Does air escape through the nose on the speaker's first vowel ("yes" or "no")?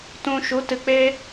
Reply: yes